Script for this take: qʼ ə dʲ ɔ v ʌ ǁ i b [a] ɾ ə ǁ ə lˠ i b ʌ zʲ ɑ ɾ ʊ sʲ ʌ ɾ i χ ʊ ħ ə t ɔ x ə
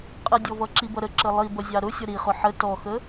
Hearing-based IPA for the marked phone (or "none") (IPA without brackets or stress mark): ʌ